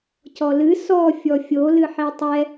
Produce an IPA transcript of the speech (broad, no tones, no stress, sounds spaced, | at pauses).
c ɔ l ɨ s ɔ fʲ ɔ fʲ o l ɨ ħ i tˤ ɛ